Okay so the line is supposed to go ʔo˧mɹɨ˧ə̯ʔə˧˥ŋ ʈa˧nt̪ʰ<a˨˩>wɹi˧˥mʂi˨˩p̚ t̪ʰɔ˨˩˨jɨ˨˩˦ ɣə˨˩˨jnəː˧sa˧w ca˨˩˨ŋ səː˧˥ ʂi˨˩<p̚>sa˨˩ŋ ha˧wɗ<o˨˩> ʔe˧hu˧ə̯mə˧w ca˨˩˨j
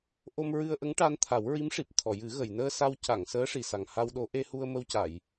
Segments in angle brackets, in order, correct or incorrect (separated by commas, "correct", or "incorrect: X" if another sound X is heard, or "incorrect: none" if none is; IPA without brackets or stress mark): incorrect: a˨˩˦, incorrect: none, incorrect: o˧˥